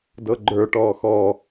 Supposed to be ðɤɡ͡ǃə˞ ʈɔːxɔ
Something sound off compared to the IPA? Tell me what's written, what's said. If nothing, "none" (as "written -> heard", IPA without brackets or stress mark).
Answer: ð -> d